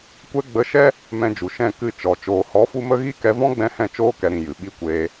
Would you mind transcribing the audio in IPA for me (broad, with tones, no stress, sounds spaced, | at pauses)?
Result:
kʷ ɛ˧ ɡ͡b ə˨˦ ʃ ɛ˦ | m ɛ̃˧ d͡ʒ u˨ ʃ ɛ̃˦˨ k ɨ˦˨ t͡ʃ ɔ˨ t͡ʃ oː˨ h ɔ˨˦ f u˧ m ə˧ ɣ i˦ k ɛ˧ v ɔ̃˦ ɡ͡b ɛ̃˧ h ɛ̃˦˨ t͡ʃ oː˧ k ɛ˨ ɾ ĩ˨ j ɨ˨ ɓ i˦ kʷ eː˧